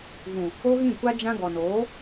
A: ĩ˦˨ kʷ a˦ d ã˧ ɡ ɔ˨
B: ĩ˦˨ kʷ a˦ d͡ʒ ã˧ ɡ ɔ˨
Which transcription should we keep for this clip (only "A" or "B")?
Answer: B